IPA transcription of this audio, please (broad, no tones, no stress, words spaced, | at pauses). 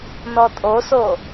nɔtʼoso